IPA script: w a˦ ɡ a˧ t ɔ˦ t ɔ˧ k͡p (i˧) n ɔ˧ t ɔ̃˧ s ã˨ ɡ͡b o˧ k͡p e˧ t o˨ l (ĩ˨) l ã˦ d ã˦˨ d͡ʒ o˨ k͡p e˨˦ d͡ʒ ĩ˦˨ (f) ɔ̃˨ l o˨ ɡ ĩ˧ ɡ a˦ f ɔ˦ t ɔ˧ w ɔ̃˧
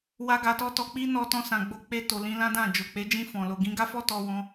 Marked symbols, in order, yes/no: no, no, yes

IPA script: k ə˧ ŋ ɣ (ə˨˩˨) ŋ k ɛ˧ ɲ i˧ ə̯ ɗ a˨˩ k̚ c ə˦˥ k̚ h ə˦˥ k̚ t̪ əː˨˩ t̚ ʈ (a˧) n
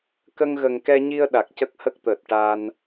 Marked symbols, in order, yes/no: no, yes

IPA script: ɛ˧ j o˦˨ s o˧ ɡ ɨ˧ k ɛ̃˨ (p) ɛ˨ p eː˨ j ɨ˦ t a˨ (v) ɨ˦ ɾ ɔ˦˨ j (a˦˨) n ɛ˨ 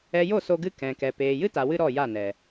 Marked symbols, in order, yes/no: no, no, yes

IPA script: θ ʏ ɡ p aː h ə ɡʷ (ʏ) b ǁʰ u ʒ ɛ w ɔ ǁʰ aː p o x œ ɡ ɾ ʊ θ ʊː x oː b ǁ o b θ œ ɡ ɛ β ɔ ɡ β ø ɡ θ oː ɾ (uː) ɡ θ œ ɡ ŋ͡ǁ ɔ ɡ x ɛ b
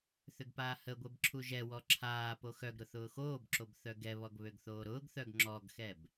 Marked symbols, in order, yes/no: no, no

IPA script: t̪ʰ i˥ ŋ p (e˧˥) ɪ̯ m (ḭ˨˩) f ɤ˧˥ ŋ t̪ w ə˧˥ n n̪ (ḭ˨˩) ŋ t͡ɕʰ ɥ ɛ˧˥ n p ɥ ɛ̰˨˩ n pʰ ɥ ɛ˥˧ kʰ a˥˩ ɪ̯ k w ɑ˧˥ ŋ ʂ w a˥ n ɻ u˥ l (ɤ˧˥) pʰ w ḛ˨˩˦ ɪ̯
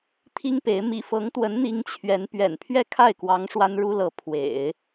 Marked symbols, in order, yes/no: yes, yes, no, yes

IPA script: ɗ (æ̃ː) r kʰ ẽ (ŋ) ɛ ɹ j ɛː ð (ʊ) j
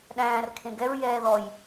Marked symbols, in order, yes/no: yes, no, no

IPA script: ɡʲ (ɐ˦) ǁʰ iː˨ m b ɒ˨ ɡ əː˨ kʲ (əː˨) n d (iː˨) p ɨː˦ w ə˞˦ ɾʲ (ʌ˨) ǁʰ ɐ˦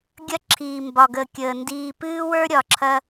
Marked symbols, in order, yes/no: yes, yes, yes, no

